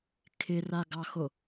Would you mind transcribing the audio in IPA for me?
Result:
kʰ ɪ r a ɡ ɑ x o

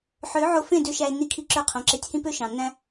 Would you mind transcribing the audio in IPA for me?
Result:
ħ ø˨˦ ʕ o˧ f ẽ˦˨ d ø˧ ʃ æ˧ e̯ nː i˧ kʰ i˧ ǁ ø˧ qʰ õ˨ ǁ e˧ tʲ h ĩ˦ p ø˦ ʃ ɑ̃˨ nː æ̃˦

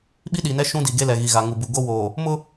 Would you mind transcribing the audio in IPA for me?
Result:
ɓ i˦ ɗ iː˨ n ɛ˦ ʃ ũ˦ d i˨ ɡ e˦ l ɛ˨ ɣ i˨ ɣ a˨ ŋ u˨ b u˨ ɡ o˦ w oː˨ | m ʊ˦

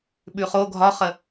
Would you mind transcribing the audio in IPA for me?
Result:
ɓ ʉ χ o ɡʱ ɒ χ ə

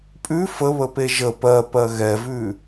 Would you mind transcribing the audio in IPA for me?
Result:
pʼ ʉ f ə β ə p e ʒ ə p ɜ p ɜ ɣ ɛ v ʉ

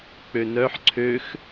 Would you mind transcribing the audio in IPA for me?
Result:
k͡p ø n œ ħ ǀʰ ø x

